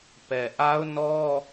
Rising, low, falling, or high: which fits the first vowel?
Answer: low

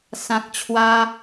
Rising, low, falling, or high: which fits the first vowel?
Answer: low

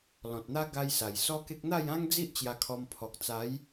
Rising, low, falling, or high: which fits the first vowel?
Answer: low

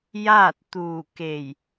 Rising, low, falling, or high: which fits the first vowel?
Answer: falling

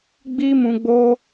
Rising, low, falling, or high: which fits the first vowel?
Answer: high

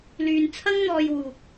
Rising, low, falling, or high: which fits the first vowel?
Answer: low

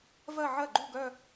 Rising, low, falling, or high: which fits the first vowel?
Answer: falling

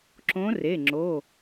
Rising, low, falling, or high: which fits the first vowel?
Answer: rising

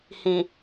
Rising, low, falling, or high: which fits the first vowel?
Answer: low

